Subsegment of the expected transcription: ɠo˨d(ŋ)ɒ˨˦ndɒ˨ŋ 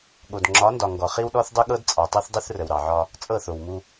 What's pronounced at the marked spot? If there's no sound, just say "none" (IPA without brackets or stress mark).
ŋ͡ǁ